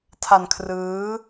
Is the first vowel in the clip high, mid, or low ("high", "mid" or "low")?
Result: low